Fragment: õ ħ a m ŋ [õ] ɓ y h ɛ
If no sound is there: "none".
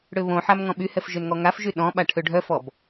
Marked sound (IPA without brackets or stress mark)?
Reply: ɔ̃